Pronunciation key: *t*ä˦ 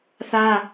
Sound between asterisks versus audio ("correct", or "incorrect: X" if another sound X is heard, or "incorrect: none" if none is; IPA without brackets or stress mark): incorrect: θ